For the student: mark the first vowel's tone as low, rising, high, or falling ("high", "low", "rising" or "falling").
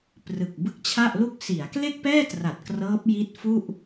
low